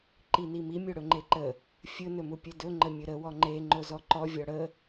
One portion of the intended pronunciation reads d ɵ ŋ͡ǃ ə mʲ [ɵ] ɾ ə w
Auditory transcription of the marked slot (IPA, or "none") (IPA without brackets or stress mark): ɵ